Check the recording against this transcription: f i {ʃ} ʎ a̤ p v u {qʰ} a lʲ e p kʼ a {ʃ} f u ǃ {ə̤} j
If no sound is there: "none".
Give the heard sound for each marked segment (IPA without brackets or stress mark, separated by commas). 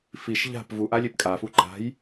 ʃ, ʔ, none, a̤